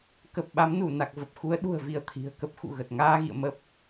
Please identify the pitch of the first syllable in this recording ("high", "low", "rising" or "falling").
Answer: low